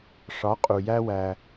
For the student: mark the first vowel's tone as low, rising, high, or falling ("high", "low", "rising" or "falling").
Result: rising